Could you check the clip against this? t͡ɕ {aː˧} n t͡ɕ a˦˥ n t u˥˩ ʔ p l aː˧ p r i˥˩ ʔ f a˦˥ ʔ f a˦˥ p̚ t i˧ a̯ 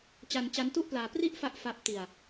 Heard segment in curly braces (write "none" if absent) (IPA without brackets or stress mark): a˧